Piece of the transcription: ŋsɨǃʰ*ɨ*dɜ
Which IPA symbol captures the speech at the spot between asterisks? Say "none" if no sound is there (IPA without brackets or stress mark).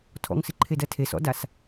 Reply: e